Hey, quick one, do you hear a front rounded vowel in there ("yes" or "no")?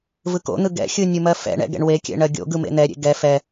no